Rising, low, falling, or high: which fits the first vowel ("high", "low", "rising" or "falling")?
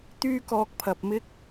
high